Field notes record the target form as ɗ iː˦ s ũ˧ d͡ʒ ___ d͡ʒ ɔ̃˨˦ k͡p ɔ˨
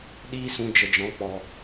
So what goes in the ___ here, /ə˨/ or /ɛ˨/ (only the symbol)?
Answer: ə˨